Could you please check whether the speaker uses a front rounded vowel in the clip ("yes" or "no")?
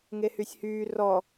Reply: yes